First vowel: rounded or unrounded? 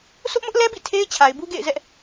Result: rounded